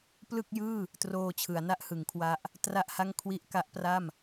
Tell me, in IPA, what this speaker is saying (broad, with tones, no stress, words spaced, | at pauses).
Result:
plɯ˥˩k̚jɯː˥˩ | troː˧t͡ɕʰɯ˩˦a̯na˥˩ʔhɯ˩˦ŋ kʰwa˦˥ʔ | tra˥˩ʔha˥˩ŋ kʰwi˥˩ʔ ka˦˥ʔpra˥˩m